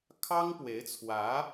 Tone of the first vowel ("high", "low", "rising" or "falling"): high